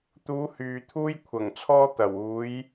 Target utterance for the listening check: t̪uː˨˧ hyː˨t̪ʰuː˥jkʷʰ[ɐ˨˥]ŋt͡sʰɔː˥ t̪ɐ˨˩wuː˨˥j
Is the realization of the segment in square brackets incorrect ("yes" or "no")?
yes